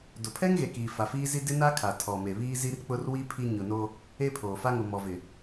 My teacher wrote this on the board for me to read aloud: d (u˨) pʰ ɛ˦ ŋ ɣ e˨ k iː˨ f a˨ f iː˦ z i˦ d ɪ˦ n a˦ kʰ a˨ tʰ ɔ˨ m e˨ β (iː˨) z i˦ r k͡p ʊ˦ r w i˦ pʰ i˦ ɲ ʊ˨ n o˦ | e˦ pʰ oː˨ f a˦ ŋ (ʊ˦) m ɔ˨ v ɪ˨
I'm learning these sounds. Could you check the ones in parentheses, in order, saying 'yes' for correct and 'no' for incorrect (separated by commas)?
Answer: no, no, no